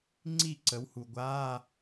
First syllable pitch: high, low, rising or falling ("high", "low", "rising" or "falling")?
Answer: falling